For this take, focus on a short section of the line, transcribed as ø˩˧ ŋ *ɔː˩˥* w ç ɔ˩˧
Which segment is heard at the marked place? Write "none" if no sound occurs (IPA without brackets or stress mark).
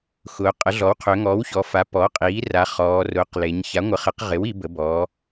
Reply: ɔː˩˥